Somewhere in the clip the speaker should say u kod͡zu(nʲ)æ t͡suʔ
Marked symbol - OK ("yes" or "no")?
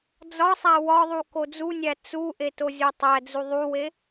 yes